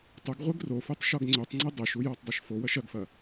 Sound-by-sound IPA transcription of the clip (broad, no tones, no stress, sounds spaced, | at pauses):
tˤ ʊ ɡ ʁʷ e ɡ r o f u tˤ ʃ ɔ ɡ ŋ͡ǀ ø tˤ ŋ͡ǀ e dˤ ø ʃ u j ɔ tˤ dˤ ø ʃ f o w ɐ ʃ ɐ ɡ f ɐ